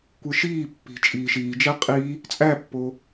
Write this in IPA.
kʷ ɯ ʃ iː pː i̤ t͡ʃʼ iː ʃ iː d͡ʒ æ qʼ i | t͡sʼ æ pː o

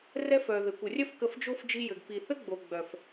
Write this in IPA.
r ɛ˦ f œ˨ ð ɘ˨ kʷ ə˨ rʲ œ˦ f k ə˧ f d͡ʒ o˦ f d͡ʒ i˧ j ɘ˨ ɡ p i˨ θ ɘ˦ ɡ͡b o˨ ɡ͡b œ˨ f

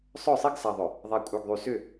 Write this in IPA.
sˤ œ˦˨ sˤ i˦ ɡ s a˨ ðˤ ʏ˨ | ðˤ a˨ kʷʼ œ˨ ɡ ðˤ y˨ s ʏ˦˨

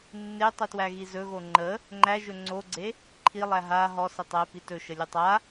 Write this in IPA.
nː e tˤ i t w æ ɣ i z ɵ ɣ o ŋ͡ǃ ə | ŋ͡ǃ æ ʒ ɵ ŋ͡ǀ o ɡ͡ǀ e | ǃʰ i lˠ æ ɦ a ɦ ɔ s ə tˤ æ p i t ɵ ʃ ə lʲ ɵ tˤ a

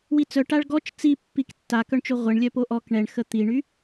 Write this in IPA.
w i t͡s œ ʈ a ɭ ɡ ɔ t͡ʃ t͡s i pː i k tː a k œ ɳ t͡ʃ o ʁʷ ə ɳ lʲ œ p o ʔ ɔ k ɳ ɛ ɳ x ə t̪ i ɳ y

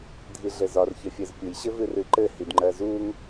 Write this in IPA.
dʱ i ɮ ɘ z ɒ r ç ɘ fʲ ɜ z pʲ u j ɕ ɘ v ɨ r ɨ ǃ ɘ h i d ŋ͡ǃ ɜ z u ŋ

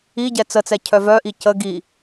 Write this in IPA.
i ɟ ɛ t͡s ə t͡s ɛ cʰ œ v œ ʔ i c ə ɡ i

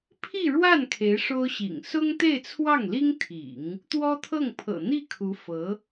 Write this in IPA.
pʰ i˥˧ ɻ w a˥˩ n kʰ e˧˥ ɪ̯ ʂ o˥ ʊ̯ ɕ ḭ˨˩ ŋ s ʊ˥ ŋ t̪ e˥˧ ɪ̯ t͡sʰ w ɑ˥˩ ŋ l i˥ ŋ t̪ʰ ḭ˨˩˦ ŋ | t̪ w ɔ˥ t̪ʰ ɤ˥˩ ŋ pʰ ɤ̰˨˩ n̪ i˥˩ kʰ u˧˥ f ɤ˧˥

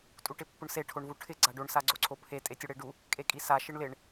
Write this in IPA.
tʼ u ʈ ɪ pː ʊ ɳ s e ʈʰ o ɳ v u ʈʰ ɪ ɡ͡ǀ a ɖ o ɳ s a ɡ͡ǀ o ǀʰ o pʰ e tʼ e tʲ ʊ ɽ e ɖ u | kʼ e kʼ i s a ʃ ɪ ɳ l ɪ ɳ

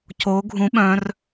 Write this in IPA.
c o ɡʱ ũ ɓ œ̃ r

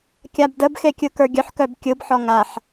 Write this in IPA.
kʲ a b d ə b x e kʲ ɯ k ə˞ ɡʲ œ ħ k œ b kʲ ɯ b ħ ɔ ŋ a ħ

